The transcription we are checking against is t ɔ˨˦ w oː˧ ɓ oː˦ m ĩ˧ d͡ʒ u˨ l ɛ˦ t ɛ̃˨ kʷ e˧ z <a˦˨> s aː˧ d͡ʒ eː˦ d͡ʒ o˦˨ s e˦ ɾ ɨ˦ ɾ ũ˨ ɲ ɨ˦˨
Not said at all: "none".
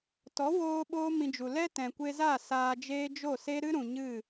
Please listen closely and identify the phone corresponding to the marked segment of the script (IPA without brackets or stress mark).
a˦˨